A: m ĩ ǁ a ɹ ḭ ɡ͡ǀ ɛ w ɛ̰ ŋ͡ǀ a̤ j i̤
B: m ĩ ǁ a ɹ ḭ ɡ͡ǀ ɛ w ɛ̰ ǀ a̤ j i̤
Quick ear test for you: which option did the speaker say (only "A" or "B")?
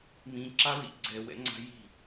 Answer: A